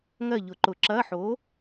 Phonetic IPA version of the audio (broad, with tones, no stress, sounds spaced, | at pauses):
ŋ ɜ˦˨ ʎ ʊ˨˩˦ ǃ ʊ˨˩˦ ǁ ɐː˧˥˧ ħ oː˨˥